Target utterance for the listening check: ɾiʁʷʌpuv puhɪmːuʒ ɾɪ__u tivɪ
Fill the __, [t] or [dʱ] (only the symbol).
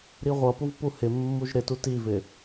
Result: t